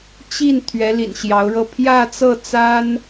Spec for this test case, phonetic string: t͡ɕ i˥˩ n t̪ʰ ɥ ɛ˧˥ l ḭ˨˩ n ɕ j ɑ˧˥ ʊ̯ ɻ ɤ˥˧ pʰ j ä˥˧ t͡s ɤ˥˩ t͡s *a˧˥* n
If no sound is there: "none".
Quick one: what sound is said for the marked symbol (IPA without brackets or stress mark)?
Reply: a˥